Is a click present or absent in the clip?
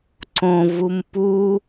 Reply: present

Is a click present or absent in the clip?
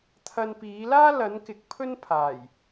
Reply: absent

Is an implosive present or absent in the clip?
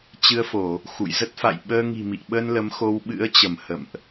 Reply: present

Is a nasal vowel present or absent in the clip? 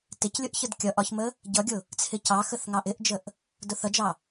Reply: absent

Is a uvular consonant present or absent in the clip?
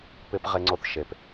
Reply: present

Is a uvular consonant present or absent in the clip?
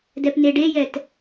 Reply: absent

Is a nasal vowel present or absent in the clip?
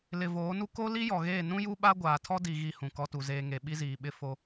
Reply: present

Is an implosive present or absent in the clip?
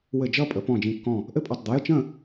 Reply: absent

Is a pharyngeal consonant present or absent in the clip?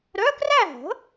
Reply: absent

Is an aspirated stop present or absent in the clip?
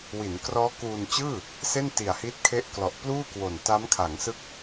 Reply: present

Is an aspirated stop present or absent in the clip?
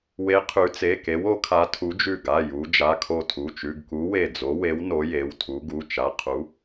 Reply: present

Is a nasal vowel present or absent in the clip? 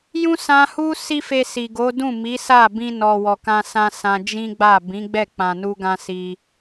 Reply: present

